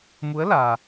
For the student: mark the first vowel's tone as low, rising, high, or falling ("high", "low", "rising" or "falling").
rising